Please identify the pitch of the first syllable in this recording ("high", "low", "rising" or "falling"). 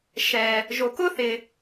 low